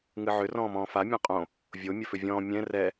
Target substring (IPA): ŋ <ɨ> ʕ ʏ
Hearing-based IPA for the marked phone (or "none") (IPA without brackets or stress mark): ɨ